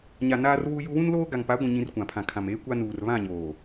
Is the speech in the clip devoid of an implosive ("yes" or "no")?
yes